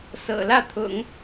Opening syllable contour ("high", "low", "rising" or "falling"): low